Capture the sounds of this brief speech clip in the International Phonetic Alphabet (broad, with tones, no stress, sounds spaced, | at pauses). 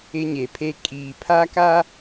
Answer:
ɪ˦ ɲ e˨ pʰ e˦ kʼ iː˨ pʰ a˦ k a˦